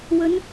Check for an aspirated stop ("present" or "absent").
absent